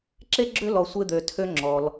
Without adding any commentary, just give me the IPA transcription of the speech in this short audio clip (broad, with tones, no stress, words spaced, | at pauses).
ǁe˥ɡ͡ǁø˥lɔ˧ sʷe˥d̪ø˧tʰø˥ ŋ͡ǁɔ˧l